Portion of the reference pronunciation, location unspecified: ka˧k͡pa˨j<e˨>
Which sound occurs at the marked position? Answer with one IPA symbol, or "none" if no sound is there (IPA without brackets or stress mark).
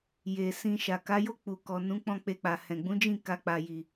i˨